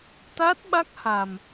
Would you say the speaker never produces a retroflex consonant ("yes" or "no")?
yes